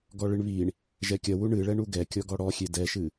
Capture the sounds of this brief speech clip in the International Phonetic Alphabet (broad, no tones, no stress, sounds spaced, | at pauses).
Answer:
ɡ ɔ ɭ ɨ ɳ β i ɳ | ʒ ɛ kʲ ɐ w u ɳ ɨ ɭ ɛ ɳ u ɡ ɛ kʲ ɔ ɡ ɔ ɽ ɔ xʲ e d ɛ ʃ ɨ